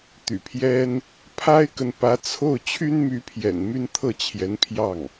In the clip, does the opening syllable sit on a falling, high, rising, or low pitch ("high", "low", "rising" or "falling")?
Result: low